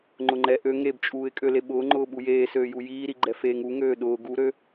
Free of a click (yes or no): no